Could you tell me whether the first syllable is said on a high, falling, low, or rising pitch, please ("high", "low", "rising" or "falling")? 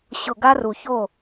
low